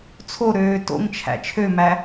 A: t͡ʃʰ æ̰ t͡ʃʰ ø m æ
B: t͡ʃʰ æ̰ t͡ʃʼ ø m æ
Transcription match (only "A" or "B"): A